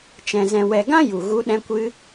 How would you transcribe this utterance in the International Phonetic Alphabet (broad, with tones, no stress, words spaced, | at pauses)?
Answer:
t͡ʃɛ̃˨ zɛ̃˨wɛ˨ ɡã˦ju˨ ɣu˧ɗɛ̃˧kʷɨ˧